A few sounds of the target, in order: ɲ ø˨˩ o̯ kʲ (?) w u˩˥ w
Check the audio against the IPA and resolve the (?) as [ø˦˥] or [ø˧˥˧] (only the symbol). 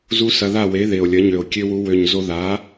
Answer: ø˦˥